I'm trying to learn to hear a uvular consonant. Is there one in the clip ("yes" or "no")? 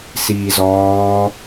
no